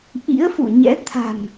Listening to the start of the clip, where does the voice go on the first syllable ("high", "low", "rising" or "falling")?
rising